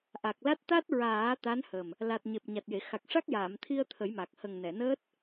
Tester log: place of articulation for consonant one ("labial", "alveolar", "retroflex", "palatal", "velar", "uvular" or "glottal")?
glottal